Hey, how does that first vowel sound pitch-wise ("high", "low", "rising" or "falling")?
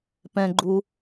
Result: high